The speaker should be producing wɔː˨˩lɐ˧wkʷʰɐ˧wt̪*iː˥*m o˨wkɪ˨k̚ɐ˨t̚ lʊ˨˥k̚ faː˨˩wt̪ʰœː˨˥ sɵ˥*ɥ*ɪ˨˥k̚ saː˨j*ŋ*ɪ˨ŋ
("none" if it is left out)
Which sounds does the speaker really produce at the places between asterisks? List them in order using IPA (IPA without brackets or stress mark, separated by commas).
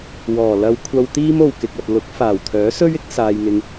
iː˥, ɥ, ŋ